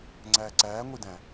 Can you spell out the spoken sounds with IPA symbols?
ŋ͡ǀ æː ǀ æː ŋʷ i d æ̃

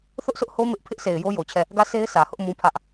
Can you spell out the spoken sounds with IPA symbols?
θ ʊ˦ ʔ s ʊ˦ ʔ h o˦ m ɪ˦ ʔ pʰ ɪ˦ ʔ sʰ e˨ ɪ̯ j o˦ j o˨ t͡ɕʰ ɛ˦˨ | ɡ ä˦˨ s e˦ ɪ̯ sʰ ä˨ h ʊ˦ ʔ m ũ˦ pʰ ä˦ ʔ

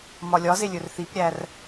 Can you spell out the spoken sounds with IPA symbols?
m ɒ lʲ ɒ z e lʲ ɵ r θ i p ɾʲ æ r

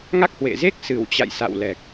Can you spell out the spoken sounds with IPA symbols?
ŋ a˦˥ k̚ h w ḛ˧˨ z e˦˥ k̚ s ɨ˧˩ w t͡ɕ a̰˧˨ j s a̰˧˨ w l ɛ˨˩ k̚

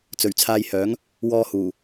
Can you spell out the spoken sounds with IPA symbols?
t͡s ɵ˨˩ ɥ t͡sʰ aː˧ j h œː˨˥ ŋ | w ɔː˧ h uː˨˩

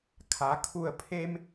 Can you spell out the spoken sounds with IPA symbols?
kʰ a˩˧ kʰ u˧˩ ə̯ pʰ e˧ m

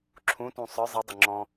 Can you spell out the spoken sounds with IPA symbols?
ǁʰ ũ t ũ sˤ ə˞ zˤ i dˤ ʊ ŋ͡ǁ ɔ̃

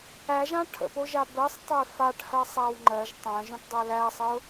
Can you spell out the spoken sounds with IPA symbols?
æ ʒ ã ʈʰ ə̰ p o ʒ a b ɜ sˤ tˤ o ɪ̯ f a ʈ h ɜ sˤ æ w ŋ͡ǃ ɜ ʒ tˤ æ̃ ʒ õ ʈ dˤ ɜ l æ sˤ ə ʊ̯

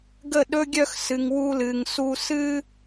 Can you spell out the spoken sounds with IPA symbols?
ɡ ə˦˨ ɗ ɵ˦ ɡʲ œ˦ x s ɨ˧ ŋ w u˦ l ɨ˧ ŋ s u˦ s ɨ˦

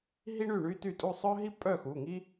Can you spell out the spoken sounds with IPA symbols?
ɦ i˥ ɳ y˥˨ ɳ y˥ t y˥˨ tʼ u˥˨ sˤ œ˥ ɦ i˥ pʼ œ˥˨ x u˩˧˩ ŋ i˥

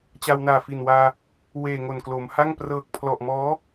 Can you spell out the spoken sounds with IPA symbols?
t͡ɕ a˧ w n aː˨˩ f i˨˩ n w aː˧ | w eː˨˩ ŋ o˨˩ n k l o˩˦ m h a˥˩ ŋ p r ɤː˨˩ k̚ pʰ l ɔ˨˩ ʔ m ɔː˦˥

